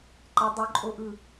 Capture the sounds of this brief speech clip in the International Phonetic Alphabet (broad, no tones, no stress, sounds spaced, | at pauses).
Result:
ǃ ə dˤ ʉ ǃʼ o ʔ ɯ